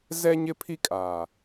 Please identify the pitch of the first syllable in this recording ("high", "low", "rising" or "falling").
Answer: high